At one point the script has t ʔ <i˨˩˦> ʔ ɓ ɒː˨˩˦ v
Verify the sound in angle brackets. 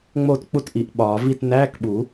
correct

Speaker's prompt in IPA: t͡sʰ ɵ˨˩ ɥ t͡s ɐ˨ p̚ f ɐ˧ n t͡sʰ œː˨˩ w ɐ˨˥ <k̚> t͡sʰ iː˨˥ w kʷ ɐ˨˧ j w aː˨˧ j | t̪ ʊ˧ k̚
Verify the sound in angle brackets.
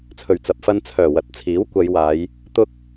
incorrect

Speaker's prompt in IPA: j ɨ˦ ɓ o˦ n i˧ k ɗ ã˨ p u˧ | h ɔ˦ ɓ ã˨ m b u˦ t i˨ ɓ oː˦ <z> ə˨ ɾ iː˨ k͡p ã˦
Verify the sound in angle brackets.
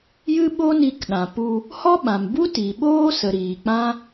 incorrect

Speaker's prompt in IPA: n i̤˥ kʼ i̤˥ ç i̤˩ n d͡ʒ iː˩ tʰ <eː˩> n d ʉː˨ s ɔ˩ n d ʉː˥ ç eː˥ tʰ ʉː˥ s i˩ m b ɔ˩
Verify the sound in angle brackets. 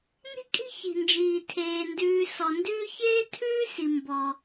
correct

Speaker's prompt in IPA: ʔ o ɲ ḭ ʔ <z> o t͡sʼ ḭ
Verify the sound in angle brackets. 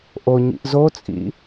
correct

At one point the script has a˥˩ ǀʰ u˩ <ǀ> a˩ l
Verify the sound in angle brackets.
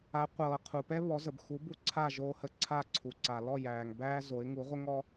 correct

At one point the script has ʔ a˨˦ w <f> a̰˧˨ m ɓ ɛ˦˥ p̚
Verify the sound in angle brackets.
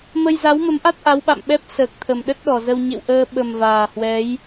incorrect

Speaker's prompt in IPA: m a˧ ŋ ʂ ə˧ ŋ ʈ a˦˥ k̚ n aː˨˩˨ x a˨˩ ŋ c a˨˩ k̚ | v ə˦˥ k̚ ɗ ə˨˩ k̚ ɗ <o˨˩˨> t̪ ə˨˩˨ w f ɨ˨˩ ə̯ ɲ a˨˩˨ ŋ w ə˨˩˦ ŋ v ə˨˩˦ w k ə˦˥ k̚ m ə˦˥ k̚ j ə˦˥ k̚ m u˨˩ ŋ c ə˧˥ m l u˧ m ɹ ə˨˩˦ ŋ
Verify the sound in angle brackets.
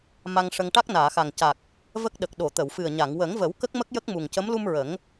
correct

